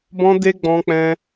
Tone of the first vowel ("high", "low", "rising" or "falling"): high